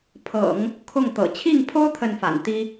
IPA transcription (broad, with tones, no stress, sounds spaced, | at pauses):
pʰ ɤ̰˨˩˦ ŋ | kʰ ʊ˥˩ ŋ t̪ ɤ̰˨˩ t͡ɕʰ i˥˩ ŋ pʰ o˥ ʊ̯ t̪ʰ ə˥˩ n f a̰˨˩ n t̪ i˥